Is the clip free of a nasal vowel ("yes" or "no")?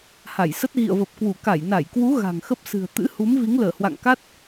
yes